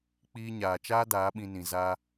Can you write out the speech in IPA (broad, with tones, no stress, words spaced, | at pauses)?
k͡piː˧ɲaː˨t͡ʃaː˦ daː˨˦ɓĩ˧nĩ˨ za˧